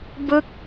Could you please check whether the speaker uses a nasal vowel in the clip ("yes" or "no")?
no